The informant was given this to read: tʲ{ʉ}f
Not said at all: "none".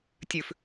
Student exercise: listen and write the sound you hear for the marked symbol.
ʉ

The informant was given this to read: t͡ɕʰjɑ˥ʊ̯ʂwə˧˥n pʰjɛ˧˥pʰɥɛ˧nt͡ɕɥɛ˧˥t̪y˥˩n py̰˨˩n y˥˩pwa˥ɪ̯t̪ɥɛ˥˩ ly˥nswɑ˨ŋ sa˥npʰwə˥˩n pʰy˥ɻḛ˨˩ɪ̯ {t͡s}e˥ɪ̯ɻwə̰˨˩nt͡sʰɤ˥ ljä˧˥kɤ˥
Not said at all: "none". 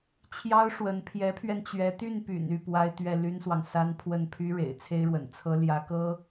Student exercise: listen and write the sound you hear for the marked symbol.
t͡sʰ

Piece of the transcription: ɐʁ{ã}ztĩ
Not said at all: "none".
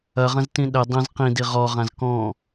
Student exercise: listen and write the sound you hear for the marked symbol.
ɐ̃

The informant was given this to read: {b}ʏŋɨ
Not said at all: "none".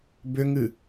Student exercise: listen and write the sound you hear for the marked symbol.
b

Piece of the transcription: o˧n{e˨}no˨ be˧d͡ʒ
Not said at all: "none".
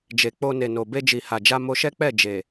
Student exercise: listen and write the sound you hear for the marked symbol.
e˨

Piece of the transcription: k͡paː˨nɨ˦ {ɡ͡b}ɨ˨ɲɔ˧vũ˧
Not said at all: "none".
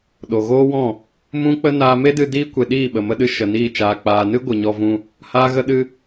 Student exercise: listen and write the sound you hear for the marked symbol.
ɡʷ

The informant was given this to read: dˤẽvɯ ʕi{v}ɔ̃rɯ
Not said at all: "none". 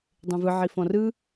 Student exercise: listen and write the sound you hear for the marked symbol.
f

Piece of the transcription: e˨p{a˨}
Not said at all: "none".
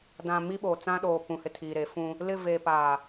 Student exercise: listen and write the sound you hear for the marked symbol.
a˨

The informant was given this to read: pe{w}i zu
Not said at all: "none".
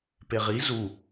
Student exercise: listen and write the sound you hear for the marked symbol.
ʁ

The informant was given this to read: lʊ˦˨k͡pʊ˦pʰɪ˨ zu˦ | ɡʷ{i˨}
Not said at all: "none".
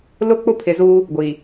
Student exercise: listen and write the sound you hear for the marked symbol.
i˨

